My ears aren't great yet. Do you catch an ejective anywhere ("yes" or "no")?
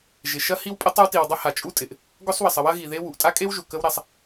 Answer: yes